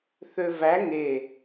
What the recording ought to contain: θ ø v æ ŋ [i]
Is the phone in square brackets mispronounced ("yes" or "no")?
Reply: yes